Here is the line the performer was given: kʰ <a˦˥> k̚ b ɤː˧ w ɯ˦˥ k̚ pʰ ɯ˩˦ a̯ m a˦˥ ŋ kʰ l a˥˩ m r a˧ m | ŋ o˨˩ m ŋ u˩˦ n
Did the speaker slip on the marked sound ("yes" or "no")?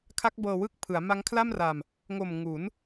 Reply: no